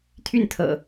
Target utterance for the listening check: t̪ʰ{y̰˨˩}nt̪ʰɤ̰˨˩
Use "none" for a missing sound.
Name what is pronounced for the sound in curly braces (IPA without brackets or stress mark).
y˥˨